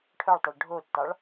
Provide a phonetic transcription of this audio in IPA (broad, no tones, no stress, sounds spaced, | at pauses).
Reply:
ʈʰ œ ɭ tˤ œ ɭ ɖʱ o tː ɑ ɭ